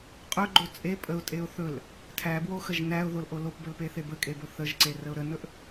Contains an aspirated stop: yes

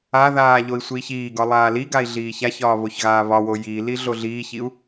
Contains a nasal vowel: no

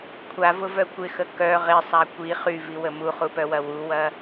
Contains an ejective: no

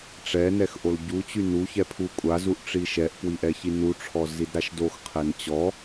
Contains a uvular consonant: yes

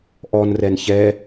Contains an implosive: no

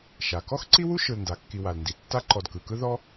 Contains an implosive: no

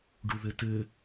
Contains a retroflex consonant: yes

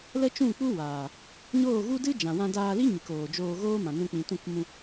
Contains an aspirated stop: no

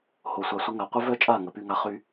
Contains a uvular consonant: yes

